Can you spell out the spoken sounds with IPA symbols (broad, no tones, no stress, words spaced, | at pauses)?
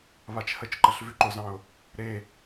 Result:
βat͡ʃhət͡ʃǃəɬ vʉǃʊzɑ̃ʊ̯ | ɾe